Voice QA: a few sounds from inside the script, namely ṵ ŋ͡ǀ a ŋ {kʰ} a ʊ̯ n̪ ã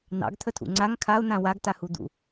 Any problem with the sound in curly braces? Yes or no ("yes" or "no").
no